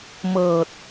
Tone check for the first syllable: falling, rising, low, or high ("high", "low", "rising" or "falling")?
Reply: low